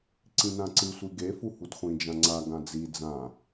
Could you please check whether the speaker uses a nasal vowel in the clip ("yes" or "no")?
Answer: yes